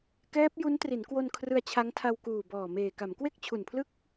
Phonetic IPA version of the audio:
k ɛː˦˥ p̚ j u˦˥ n t r i˩˦ n k w o˧ n kʰ r ɯ˧ a̯ t͡ɕʰ a˦˥ ŋ tʰ a˧ w k uː˨˩ b ɔː˨˩ m eː˨˩ k a˩˦ m k w e˥˩ k̚ t͡ɕʰ u˨˩ n pʰ l ɯ˥˩ k̚

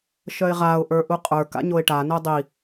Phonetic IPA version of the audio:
ʃ œ ɪ̯ ʁ a ʊ̯ ʔ ə˞ ʔ u qʼ ə˞ k a̰ ɲ o ɪ̯ ʈ a n œ dˤ i

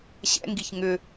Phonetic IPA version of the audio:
ɕ ɛ̰ ŋ ɡ i ç ŋ ʏ

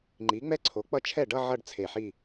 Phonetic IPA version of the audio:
ŋ͡ǃ i˩˥ ŋ͡m ɛ˥˧ ǀʰ o˩˥ k͡p ʌ˥˩ t͡ʃʰ ɛ˥˩ ɖ ʌ˥˧ ʕ ʌ˥˧ ɖ t͡sʰ e˧˩ ħ i˥˧

